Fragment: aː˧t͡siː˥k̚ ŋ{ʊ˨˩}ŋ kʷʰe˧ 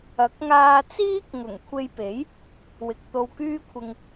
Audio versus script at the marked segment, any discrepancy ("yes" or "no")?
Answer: no